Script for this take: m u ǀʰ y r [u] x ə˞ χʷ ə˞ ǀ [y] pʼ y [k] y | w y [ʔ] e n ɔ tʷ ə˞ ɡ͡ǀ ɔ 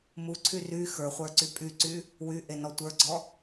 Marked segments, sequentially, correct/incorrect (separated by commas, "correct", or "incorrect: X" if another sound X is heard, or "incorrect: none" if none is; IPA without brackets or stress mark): incorrect: y, correct, incorrect: ǀ, correct